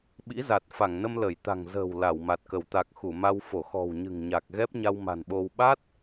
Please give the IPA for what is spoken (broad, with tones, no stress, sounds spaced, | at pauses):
ɓ ḭ˧˥ z a˨˩ t̚ f a˧˩ ŋ n ə˧ m l ə˧˩ j t̪ a̤˨˩ ŋ z ə̤ː˨˩ w l a˧˩ w m a˨˩ t̚ k ə˧˩ w t̪ a˨˩ k̚ x u˧˩ m a˧ w f o˧˩ x ɔ̤˨˩ w ɲ ɨ̤˨˩ ŋ ɲ a˨˩ k̚ ɣ ɛ˦˥ p̚ ɲ a˧ w m a̤˨˩ n ɓ o˧ w ɓ a˦˥ t̚